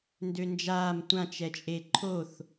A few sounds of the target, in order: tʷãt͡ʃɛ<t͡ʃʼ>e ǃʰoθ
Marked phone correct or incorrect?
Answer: correct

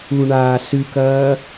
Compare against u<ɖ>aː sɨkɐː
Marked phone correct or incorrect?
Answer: incorrect: ɳ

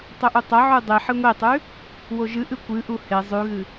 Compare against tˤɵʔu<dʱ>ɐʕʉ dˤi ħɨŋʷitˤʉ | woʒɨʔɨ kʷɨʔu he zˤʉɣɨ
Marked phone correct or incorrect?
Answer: incorrect: tˤ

